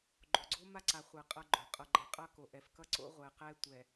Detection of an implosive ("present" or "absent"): absent